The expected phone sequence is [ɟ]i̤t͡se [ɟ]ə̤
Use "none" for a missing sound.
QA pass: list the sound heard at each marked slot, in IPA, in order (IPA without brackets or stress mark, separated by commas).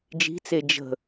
d͡ʒ, d͡ʒ